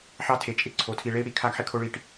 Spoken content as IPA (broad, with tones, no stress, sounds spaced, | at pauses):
ħ ɑ˦ tʰ e˨ t͡ʃʼ ɪ˦ ǀʰ o˨ tʰ i˨ ɭ e˦ i̯ ɽ i˨˦ kʰ a˦ ɡ ħ ɪ˦ kʰ o˦ ɭ i˦˨ ʈ